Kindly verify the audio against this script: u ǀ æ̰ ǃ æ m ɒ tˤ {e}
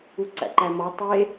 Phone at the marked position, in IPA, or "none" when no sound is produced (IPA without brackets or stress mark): e